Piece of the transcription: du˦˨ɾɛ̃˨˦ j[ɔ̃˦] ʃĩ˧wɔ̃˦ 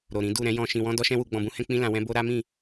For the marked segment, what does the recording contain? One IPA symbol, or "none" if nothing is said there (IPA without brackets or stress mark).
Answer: ɔ̃˧